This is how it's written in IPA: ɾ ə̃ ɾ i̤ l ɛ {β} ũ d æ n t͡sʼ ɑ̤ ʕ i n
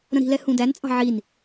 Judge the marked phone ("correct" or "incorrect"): incorrect